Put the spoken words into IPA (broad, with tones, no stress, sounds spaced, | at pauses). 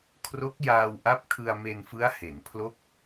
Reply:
kʰ r o˦˥ k̚ j aː˧ w ʔ a˦˥ p̚ kʰ ɯ˧ a̯ m e˧ n f ɯ˦˥ a̯ h e˩˦ n pʰ l o˦˥ k̚